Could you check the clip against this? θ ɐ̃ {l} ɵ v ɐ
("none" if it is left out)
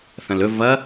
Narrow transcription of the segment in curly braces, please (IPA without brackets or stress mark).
l